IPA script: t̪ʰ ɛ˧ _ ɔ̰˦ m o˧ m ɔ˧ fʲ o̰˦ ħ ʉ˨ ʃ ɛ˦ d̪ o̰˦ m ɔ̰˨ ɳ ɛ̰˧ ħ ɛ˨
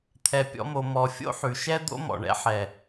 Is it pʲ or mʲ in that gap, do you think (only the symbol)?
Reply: pʲ